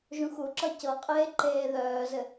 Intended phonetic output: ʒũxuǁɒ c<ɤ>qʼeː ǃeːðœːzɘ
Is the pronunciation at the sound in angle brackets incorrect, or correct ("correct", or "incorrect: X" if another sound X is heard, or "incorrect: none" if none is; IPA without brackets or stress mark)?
correct